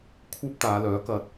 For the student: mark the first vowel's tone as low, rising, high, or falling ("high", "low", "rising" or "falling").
high